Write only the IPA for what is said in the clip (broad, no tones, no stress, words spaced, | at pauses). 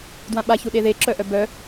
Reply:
dwãɓa çuɗeðe ǁœʔœbœ